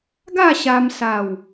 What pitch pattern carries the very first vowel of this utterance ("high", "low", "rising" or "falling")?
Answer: falling